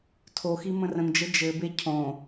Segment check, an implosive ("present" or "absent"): absent